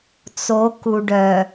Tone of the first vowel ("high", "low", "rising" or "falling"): rising